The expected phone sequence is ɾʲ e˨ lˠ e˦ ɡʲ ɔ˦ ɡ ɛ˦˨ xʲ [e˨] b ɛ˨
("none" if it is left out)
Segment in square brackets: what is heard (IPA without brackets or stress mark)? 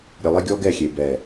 e˨